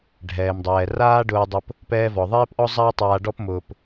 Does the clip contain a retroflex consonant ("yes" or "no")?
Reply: yes